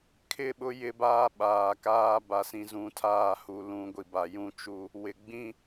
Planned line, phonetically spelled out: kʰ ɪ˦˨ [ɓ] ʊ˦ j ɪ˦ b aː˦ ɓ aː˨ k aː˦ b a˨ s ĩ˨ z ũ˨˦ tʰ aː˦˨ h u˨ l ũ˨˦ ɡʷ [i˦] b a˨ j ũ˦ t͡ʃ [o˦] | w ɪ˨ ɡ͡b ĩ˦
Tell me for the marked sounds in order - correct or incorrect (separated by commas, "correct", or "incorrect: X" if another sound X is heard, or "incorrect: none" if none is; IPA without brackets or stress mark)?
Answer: correct, incorrect: i˨, incorrect: u˦